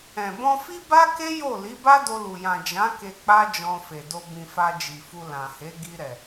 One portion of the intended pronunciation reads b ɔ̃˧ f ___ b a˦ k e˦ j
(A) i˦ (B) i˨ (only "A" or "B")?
A